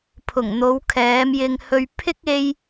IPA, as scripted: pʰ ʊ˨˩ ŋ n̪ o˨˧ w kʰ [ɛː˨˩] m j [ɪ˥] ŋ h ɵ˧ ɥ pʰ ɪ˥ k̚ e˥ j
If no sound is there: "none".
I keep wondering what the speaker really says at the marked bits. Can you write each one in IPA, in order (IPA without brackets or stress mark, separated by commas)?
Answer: ɛː˨˧, ɪ˧